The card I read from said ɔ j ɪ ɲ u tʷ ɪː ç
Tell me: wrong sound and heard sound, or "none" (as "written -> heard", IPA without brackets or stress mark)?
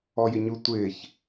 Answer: none